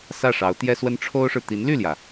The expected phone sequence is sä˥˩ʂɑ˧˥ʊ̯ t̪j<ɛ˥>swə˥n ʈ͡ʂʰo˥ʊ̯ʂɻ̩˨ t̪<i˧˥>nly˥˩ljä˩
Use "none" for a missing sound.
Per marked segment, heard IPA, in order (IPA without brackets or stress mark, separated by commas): ɛ˥, i˧˥